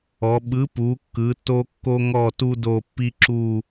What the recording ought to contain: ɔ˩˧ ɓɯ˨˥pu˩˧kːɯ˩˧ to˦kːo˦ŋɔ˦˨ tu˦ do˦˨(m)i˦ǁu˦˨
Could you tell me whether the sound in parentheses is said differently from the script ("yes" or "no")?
yes